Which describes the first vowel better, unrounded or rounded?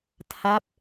unrounded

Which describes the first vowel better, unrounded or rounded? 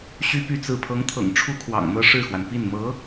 rounded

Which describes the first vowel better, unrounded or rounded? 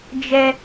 unrounded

